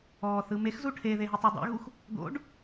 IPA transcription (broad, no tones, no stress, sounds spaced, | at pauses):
ɔː θ ɯ m e x z u ʈʰ e ð e ɦ i tˤ u dˤ ɛ̰ ɣ u x | d̪ o̰ ɖ